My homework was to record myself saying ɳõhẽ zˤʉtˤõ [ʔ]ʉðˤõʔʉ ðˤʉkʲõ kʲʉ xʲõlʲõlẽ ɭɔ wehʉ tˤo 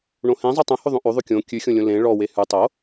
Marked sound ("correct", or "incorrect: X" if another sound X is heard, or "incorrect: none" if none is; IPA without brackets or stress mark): incorrect: h